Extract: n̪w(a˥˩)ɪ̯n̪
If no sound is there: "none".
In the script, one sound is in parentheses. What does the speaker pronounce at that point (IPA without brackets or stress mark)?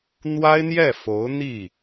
a˥